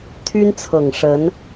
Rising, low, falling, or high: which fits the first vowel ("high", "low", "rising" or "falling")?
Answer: high